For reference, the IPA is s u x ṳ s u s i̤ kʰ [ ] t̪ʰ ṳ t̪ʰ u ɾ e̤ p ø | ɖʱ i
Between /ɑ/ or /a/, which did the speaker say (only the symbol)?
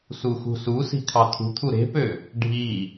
ɑ